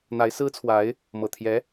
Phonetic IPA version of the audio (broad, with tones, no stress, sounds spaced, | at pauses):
n̪ a˧˥ ɪ̯ s ɹ̩˥ t͡sʰ w a˧˥ ɪ̯ | m ɤ˨˩ t̪ʰ j ɛ˧˥